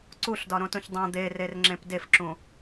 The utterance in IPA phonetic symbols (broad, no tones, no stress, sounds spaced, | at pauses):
ǀ u ɬ d ɒ ɾ õ t ũ ç dˤ õ d̪ e r e r ŋ͡ǁ ẽ p d e f ǁ ũ